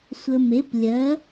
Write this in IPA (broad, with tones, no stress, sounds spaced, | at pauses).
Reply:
sʷ ə˧ m e˨˥ p lʲ ɜ˨˥